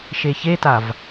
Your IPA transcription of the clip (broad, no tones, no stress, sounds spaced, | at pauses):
ʃ e ç e t a v